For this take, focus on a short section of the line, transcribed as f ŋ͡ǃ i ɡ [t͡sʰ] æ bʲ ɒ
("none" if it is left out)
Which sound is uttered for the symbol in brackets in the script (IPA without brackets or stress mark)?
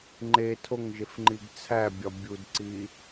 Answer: t͡sʰ